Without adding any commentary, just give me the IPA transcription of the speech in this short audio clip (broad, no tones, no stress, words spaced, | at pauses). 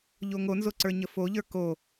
ʎoŋonzo ǀə˞ɲəfoʎə˞ ko